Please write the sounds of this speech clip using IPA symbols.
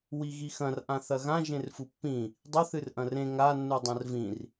wiɣixɐ̃r ʔãθɐɣã ʒẽrfupːĩ | dˤɵ θɨrʔɐ̃rẽ ŋa nːudˤɐ̃rvĩr

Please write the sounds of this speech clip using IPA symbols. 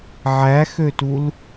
ʕæxøtul

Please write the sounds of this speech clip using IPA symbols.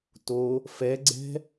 to | fɛɡ͡ǀɛ̤

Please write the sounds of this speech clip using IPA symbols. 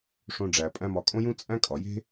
ʂõ˨ɖ͡ʐæ˩ pʼæ̃˦mɒ˨ kʼõ˥jũ˥ t͡sʼæ̃˥kʼɒ˩je̤˥

